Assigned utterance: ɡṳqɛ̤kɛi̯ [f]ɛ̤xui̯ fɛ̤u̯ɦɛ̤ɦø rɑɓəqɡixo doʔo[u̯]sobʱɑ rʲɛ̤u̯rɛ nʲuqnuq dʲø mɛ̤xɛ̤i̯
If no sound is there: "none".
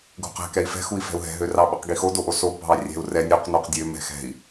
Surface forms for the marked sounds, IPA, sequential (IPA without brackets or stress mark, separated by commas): f, none